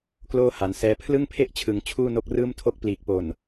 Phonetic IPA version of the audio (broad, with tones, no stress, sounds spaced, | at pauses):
k l oː˥˩ h a˩˦ n s ɛː˧ pʰ l ɯ˥˩ ŋ pʰ e˥˩ ʔ t͡ɕʰ ɯ˩˦ ŋ t͡ɕʰ uː˥˩ n o˦˥ k̚ r ɯː˥˩ m tʰ o˥˩ k̚ p l iː˨˩ k̚ p o˨˩ n